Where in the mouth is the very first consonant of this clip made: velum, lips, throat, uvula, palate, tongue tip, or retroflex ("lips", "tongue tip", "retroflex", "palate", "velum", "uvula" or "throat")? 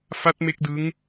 lips